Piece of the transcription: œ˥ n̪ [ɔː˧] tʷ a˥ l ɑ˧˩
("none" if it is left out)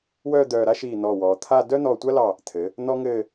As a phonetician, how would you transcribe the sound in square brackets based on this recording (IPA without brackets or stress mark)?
ɔː˧